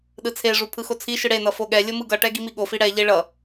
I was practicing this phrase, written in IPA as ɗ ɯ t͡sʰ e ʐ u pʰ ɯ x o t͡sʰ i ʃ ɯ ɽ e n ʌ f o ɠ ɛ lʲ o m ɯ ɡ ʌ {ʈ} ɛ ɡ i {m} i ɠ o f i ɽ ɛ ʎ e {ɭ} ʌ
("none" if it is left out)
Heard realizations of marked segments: ʈ, m, ɭ

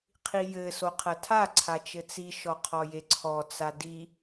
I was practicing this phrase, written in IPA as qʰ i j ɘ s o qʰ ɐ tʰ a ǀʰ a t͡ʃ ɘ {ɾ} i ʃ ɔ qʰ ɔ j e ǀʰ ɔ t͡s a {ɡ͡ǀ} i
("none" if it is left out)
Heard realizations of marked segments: t͡s, d

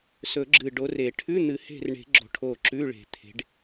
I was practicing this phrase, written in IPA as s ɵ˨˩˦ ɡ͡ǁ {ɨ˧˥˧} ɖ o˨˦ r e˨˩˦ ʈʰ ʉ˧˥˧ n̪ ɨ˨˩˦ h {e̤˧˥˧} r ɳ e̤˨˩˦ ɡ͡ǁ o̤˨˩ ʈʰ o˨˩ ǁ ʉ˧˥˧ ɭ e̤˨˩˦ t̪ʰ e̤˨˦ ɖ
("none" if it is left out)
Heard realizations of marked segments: ɨ˨˩, e̤˦˨

